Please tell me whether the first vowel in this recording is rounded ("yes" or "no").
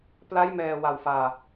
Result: no